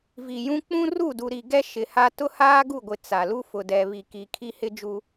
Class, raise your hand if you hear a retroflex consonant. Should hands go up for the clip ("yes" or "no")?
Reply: no